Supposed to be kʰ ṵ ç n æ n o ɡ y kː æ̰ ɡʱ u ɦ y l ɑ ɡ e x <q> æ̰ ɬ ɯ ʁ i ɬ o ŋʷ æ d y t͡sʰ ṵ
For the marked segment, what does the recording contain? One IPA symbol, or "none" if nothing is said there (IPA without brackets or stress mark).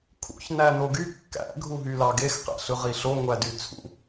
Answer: q